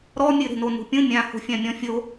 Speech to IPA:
ɾ ɔ mʲ ɨ ɾ e̤ n o n ṳ pʲ ũ mʲ ã h o̤ fʲ ã mʲ ɔ̃ fʲ o

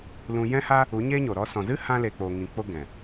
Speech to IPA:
l ũ˧ j ɛ̃˦ h a˦ | u˨˦ ɲ eː˦ ɲ o˨ ɾ ɔ˧ s ɔ̃˨ z ɨ˦ h ã˦ l e˧ k͡p o˨ ŋ ĩ˨ k͡p o˦ ɡ ɛ̃˨

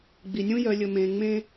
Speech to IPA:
ɡ͡b i˨ nʲ ũ˦ j œ˨ lʲ ɵ˨ m ẽː˨ ŋ͡m ẽː˦

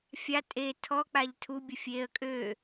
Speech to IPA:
fʲ a tʼ e tʰ ɔ k͡p a ʎ tʰ u bʲ ə fʲ e ə̯ kʼ ø

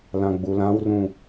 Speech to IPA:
l ã ɡ͡b u l ã w r ũ

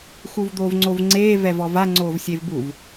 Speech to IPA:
x u v d̪ oː v ŋ͡ǀ o v ŋ͡ǀ eː v ɛ v ɔ v a ŋ͡ǀ oː v sʲ e v b u v

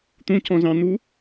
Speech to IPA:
t̪ ũ c ɔ̃ z ɑ̃ n̪ u

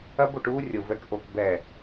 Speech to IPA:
ɐ˦ b o˦˨ ʈ uː˦ rʲ o˨ v ɛ˨ k ʔ o˨ k b ɛ˨

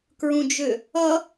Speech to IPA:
k ɹ ũ d͡ʒ ʏ | ʌ

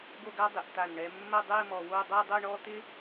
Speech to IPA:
ɡ o˥˧ ɡ a˥ dˤ ɪ˩˧ ʔ t̪ a˧˩ n ɳ ɛ˧ mː ɐ˥˧ dˤ ɛ˥˧ m ɔ˧ w o˥˧ dˤ ɐ˥˧ dˤ o˥˧ ɳ ɔ˥ t̪ ɪ˥

